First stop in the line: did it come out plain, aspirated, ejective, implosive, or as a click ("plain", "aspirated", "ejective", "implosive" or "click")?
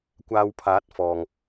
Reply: plain